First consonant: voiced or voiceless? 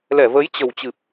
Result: voiced